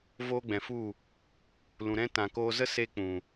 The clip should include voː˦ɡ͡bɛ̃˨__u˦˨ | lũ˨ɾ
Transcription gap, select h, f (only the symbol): f